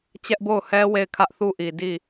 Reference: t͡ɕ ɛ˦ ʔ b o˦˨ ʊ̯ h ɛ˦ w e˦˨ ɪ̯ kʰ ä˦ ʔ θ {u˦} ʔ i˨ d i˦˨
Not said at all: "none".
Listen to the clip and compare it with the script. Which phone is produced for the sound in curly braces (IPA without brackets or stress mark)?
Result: u˦